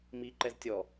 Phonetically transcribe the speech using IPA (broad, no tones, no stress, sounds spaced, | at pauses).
m i ǃ ɛ z tʲ ɔ